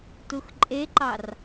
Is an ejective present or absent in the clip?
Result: present